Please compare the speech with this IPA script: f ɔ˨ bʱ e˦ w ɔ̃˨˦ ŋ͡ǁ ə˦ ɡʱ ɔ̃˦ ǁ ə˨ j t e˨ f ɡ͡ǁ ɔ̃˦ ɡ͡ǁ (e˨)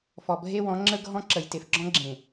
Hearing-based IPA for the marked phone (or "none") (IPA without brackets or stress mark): ẽ˨